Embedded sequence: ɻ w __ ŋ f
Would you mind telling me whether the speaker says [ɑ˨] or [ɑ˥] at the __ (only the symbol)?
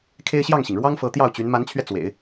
ɑ˥